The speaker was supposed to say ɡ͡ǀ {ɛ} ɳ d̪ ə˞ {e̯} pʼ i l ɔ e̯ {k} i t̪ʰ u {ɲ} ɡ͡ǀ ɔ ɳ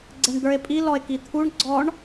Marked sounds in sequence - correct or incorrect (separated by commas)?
correct, correct, correct, incorrect